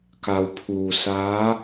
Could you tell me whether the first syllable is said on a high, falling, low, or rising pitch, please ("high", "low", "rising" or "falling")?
low